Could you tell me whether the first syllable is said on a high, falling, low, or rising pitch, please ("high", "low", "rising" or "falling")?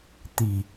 low